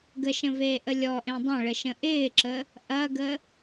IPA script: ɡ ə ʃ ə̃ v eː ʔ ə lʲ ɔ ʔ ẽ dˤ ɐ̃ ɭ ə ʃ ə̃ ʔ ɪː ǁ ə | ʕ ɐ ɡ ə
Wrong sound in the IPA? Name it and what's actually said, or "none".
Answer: ʕ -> ʔ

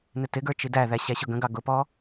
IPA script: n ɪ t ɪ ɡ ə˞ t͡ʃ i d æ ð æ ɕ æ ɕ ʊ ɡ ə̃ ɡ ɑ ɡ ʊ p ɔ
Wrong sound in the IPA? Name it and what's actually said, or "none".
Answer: none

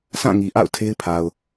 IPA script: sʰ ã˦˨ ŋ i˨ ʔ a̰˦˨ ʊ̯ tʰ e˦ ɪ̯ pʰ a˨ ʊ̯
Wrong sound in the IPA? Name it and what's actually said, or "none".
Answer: none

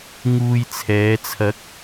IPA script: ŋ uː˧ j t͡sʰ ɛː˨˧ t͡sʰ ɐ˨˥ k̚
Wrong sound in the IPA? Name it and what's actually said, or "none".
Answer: none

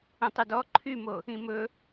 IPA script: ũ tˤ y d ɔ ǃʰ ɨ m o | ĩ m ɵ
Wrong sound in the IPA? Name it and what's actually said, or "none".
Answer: ɨ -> y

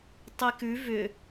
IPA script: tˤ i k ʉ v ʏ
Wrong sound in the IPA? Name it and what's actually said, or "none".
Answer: none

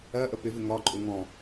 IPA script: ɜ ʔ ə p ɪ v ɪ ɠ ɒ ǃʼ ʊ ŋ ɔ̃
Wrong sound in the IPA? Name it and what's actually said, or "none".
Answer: ɠ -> ŋ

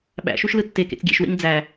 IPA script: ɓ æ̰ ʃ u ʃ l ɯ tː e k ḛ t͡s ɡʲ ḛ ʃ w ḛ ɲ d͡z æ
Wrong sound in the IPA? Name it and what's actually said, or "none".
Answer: none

